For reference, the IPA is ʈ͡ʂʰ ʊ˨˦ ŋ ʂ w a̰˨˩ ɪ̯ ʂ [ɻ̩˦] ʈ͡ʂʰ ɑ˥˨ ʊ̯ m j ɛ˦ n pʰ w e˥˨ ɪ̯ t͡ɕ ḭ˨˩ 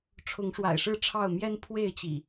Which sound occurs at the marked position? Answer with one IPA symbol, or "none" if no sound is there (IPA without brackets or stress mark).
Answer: ɻ̩˥˨